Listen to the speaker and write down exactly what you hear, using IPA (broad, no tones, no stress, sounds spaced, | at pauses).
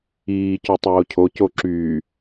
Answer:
iː c u tˤ oː cʰ o c o ǁ yː